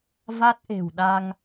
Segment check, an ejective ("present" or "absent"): absent